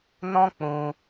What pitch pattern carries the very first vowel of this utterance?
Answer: high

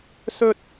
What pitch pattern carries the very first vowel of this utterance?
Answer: high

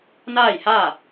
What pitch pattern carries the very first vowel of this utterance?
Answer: falling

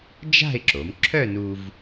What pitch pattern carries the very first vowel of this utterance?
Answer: falling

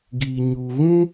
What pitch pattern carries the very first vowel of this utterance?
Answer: low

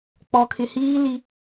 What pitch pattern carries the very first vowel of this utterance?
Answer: low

